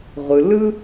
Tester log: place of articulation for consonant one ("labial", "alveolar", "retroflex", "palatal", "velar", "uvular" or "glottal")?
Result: uvular